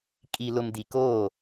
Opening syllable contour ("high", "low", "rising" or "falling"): low